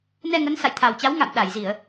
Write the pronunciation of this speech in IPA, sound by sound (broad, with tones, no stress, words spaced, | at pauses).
nɛ˧ŋə˨˦n sa̰˧˨jt̪ʰa˨˩wt͡ɕa˨˦w ŋa̰˧˨m ɗa˧˩jzi˧˩˨ə̯